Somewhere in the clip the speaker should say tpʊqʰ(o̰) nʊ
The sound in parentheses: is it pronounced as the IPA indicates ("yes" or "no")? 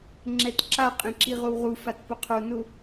no